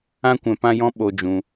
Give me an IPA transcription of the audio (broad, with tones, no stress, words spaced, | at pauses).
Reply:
ã˦kʷɛ̃˧ pã˦jɔ̃˦ ɓo˧d͡ʒũ˧